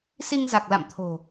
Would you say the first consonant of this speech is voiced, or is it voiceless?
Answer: voiceless